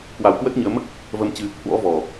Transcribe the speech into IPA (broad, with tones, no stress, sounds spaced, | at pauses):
k w a˨˩ w k w ə˦˥ t̚ ɲ əː˨˦ m | v ə˧ m t͡ɕ ɨ˧ | h w ɔ̰˧˥ v ɔ˨˩